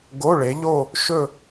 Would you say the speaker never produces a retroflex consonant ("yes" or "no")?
no